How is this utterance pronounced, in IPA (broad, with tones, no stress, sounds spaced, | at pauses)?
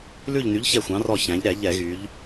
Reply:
l ʉ˦˨ ʎ n y˨˥ ʎ ç ɛ˦˨ xʷ ɑ̃˨˥ r ɔ˦˨ ç æ̃˩˧ ʎ ɾ ɛ˧˩˧ ʎ ɛ˧˩˧ ɣ y˩˧ ʎ